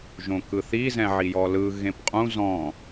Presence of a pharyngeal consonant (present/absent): present